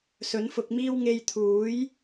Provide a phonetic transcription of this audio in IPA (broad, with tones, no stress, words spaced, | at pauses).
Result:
sɵ˨˥nfʊ˧k̚miː˥w ŋe˧jt̪ʰuː˨˥j